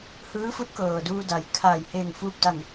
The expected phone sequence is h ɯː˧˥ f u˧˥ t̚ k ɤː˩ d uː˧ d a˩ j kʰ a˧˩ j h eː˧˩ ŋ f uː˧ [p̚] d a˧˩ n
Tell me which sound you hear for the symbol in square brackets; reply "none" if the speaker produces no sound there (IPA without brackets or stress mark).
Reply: p̚